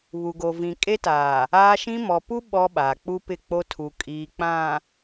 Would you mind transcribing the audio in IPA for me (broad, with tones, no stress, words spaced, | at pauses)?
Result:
βu˨ɡo˨vĩ˨ kʼe˦taː˨ | aː˦ʃĩ˦ mɔ˨ pu˦ ɓɔ˦ɓaː˨ k͡pu˦pɪ˦˨ k͡po˦tʰu˨ kʼiː˨k͡pã˨